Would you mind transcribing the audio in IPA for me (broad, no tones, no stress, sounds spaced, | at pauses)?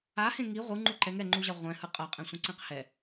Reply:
a h ẽ ŋ i ʁʷ ɯ ŋ͡ǃ u ǃ ɛ ŋ ɛ ŋ͡ǃ u ʑ a ʁʷ ɛ̃ h ɯ qʼ ʌ qʼ ẽ sʷ ẽ ǀ ẽ q h ɛ